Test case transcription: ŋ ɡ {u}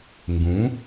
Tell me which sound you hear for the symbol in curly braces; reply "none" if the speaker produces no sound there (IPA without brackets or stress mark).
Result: ũ